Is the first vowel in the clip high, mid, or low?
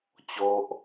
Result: mid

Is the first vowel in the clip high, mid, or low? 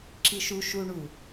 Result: high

